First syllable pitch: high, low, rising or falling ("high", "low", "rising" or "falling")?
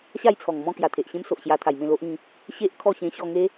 falling